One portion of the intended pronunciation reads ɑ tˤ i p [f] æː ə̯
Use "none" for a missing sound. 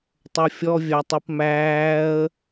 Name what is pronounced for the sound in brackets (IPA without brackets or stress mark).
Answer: m